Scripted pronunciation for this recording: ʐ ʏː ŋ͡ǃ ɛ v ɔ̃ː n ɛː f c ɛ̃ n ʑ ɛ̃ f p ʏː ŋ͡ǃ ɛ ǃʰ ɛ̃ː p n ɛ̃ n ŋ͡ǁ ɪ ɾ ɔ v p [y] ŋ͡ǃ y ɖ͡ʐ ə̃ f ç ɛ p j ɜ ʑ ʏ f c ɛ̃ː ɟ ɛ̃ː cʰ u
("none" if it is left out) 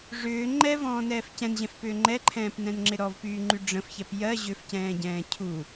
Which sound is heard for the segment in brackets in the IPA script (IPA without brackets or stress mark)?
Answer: yː